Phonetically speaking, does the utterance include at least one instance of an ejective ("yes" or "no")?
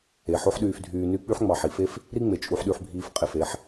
yes